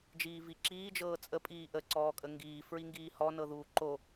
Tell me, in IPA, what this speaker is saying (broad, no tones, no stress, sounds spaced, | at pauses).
d͡ʒ iː v i ǁ iː d͡ʒ ɤː t͡sʼ ə pʼ iː ʔ ə ǀ ɔː kʼ ə ŋ ɡ iː f ɹ i ŋ ɡ iː h ɔ n ɤ ð uː ǃ o